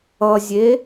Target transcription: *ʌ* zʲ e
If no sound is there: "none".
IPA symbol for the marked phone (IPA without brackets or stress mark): ʌ